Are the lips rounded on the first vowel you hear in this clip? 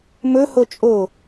yes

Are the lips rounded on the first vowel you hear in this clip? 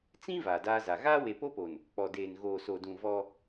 no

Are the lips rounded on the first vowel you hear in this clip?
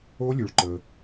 yes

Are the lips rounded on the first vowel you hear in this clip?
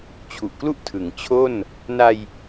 yes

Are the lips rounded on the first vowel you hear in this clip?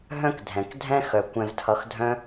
yes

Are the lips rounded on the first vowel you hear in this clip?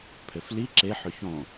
yes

